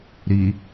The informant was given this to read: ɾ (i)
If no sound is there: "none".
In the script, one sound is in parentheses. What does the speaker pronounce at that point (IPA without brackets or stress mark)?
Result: i